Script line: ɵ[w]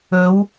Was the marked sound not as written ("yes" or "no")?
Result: no